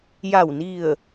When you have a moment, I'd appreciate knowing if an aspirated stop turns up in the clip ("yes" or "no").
no